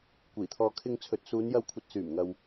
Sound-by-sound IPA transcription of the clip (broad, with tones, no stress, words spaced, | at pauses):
kʷiː˨˩t̪ʰɔː˨ kʰɪ˨ŋ t͡sʰɵ˨t̚suː˨˧njɐ˧wkʷʰɐ˨t̚ syː˨˩mŋɐ˨w